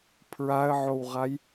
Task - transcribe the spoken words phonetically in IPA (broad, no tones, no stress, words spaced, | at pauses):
pʰɹaə̯ʕowʁaj